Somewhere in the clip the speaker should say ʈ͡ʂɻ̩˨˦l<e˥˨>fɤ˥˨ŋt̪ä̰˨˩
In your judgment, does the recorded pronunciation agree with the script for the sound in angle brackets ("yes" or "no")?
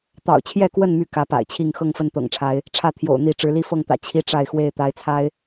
no